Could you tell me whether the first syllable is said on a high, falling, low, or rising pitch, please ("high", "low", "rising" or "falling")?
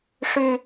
high